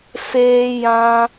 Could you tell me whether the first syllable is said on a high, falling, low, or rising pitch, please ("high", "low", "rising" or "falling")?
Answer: high